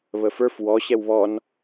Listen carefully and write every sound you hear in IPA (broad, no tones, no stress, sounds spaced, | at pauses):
β ə f ə˞ f w ɔ ɕ ɛ w β ɔ n